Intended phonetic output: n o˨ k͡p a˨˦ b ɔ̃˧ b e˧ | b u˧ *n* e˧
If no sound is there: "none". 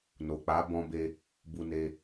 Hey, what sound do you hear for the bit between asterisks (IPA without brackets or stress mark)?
n